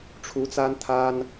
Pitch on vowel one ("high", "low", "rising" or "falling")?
rising